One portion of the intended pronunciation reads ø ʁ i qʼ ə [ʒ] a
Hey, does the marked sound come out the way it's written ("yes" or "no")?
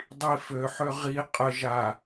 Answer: yes